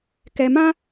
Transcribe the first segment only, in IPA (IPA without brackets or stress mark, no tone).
k